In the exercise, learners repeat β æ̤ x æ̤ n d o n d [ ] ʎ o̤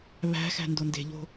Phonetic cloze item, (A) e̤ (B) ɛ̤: A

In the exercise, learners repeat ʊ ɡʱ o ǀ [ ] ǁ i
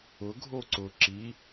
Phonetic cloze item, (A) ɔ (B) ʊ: B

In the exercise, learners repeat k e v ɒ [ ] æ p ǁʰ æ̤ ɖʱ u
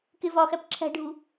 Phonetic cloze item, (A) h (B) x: B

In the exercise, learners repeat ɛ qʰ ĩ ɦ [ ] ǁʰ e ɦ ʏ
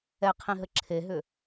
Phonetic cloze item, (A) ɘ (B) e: A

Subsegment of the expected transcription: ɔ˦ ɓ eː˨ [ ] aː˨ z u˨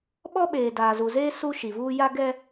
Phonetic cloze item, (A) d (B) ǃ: A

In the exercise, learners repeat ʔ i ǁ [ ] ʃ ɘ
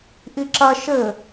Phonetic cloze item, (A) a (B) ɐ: B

